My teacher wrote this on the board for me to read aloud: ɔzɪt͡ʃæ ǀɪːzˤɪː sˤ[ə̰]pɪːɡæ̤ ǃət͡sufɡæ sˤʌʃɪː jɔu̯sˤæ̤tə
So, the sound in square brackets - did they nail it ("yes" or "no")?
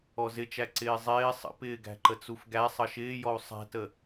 yes